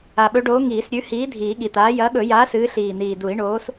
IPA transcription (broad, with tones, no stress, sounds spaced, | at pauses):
a˨˩ ɓ ɵ˨˥ ɖ oː˨˥ ŋ iː˨˩˦ s ɾʲ ʉ˨˥ h iː˨˥ dʱ iː˨˩˦ ɠ i˨˩ t̪ aː˨˥ j ɐː˨˥ ɠ ɵ˨˩˦ j aː˨˥ s ɨː˨˥ ɬ iː˨˩ n̪ iː˨˩ d u˨˩˦ i̯ ɳ oː˨˥ s